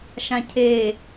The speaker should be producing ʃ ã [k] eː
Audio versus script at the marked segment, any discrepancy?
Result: yes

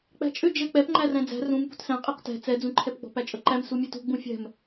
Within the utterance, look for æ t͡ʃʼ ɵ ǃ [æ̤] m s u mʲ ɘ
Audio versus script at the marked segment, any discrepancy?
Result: yes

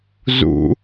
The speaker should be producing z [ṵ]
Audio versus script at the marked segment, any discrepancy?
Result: no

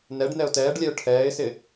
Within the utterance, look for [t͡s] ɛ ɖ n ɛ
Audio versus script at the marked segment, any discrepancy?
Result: yes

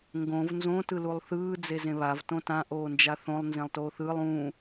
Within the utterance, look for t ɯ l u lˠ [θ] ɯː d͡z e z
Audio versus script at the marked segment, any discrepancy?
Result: no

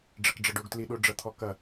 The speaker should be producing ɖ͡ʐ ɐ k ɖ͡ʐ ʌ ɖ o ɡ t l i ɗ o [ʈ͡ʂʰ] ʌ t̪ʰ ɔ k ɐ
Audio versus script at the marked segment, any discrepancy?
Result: yes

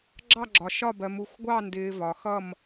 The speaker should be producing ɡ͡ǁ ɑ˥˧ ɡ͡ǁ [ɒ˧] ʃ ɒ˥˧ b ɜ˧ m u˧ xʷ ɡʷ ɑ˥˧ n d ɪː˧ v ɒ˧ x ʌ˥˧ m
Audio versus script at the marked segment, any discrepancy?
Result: no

